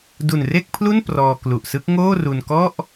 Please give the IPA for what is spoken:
d u˨˩ n r e˥˩ k̚ pʰ l u˥˩ n p r ɔː˧ k l u˨˩ ʔ s ɯ˦˥ k̚ ŋ oː˥˩ r u˧ n k ɔ˥˩ ʔ

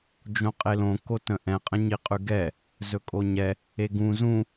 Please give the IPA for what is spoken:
d͡ʒ õ qʼ e l õ k o t ə̃ ʔ ɛ̃ qʼ ə̃ ɲ i qʼ ʉ ɡ ɛ | z ɵ kʼ o ɲ ɛ | e ɡ ũ z ũ

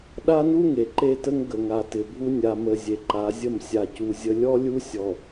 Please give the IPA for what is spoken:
ɗ a˦ n u˦ ŋ e˨ ǃ e˦ t ə˦ ŋ ɡ ə˨ ŋ a˨ t ɪ˨ bʱ u˦ nʲ a˨ m ə˨ zʲ e˨ ǃ a˨˦ zʲ ə˦˨ m sʲ a˨ c u˨ zʲ ə˨ lʲ ɔ˦ lʲ u˦ sʲ ɔ˨

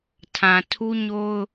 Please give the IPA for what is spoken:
tʰ ã˨ tʰ u˦ ɲ o˦ ʊ̯

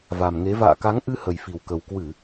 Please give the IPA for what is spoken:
v a˨˩ m ŋ e˨˦ v a̰ː˧˨ k a˨˦ ŋ ʔ ɨ˧ h ə˨˩ j f i˨˩ w k ə˨˩ w k w ɨ˧˩˨

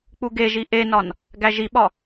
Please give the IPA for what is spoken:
k͡p u ɡ e ʒ i ʔ e n ɒ n | ɡ æ ʒ i ɓ ɒ

